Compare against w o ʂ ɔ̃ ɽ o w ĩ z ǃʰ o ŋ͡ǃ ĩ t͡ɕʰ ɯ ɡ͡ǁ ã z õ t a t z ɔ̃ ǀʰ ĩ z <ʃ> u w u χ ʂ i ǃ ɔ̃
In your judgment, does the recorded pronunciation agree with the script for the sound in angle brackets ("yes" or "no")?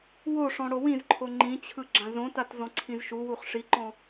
yes